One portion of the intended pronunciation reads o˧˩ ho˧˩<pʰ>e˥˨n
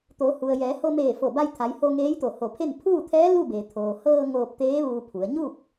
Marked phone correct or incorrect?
correct